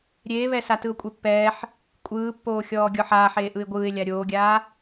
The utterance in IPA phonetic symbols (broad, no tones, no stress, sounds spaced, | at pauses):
ɾʲ eː β ɛ s a t ɯ ʊ̯ kʷʼ e pː ɛː ħ | kʷʼ ɯː pː oː xʲ ɔː ɡʲ ɔ ħ aː ħ eː ʔ ɯ ɪ̯ ɡʷ ɯː ɪ̯ lʲ a ɾʲ oː ɡʲ aː